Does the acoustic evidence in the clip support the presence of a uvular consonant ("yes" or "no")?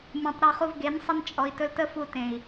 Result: yes